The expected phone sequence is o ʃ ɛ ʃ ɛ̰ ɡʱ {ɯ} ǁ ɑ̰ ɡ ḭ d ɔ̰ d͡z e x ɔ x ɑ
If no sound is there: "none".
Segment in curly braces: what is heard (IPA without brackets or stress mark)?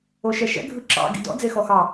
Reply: ɯ